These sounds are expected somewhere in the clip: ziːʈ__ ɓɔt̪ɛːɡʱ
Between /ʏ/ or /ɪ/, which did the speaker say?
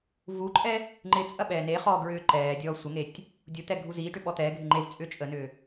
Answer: ʏ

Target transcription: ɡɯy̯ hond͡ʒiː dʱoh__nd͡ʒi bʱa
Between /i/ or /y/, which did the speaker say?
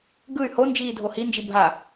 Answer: i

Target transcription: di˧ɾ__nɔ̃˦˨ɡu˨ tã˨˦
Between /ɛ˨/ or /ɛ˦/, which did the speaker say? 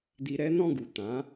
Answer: ɛ˦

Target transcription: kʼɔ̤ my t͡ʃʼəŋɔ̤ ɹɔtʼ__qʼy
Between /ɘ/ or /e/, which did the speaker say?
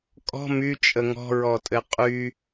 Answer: ɘ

